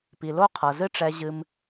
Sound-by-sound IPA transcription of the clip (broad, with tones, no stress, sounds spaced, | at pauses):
p i˩ l o˥ qʰ ɤ˩ z ɨ˥ ʈ͡ʂ ɛ˧ ʑ ɨ˧ m